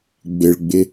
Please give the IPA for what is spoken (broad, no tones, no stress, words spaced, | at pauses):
ɡ͡bɪɭɡ͡bɪ